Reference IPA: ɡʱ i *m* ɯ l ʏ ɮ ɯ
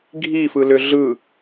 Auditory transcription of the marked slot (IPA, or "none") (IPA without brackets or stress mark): f